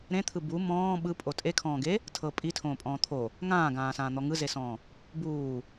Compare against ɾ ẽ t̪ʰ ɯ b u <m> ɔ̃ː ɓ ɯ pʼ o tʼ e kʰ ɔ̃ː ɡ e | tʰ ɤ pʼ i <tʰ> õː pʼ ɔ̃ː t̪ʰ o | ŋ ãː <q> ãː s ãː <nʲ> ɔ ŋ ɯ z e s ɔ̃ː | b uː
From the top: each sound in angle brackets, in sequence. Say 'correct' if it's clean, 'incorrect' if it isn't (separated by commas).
correct, correct, incorrect, incorrect